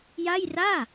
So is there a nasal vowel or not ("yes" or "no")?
no